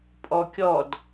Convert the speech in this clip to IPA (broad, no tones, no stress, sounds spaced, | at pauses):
pʼ ɔ kʲ ɔ d